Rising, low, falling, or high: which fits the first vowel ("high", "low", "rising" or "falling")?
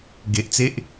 low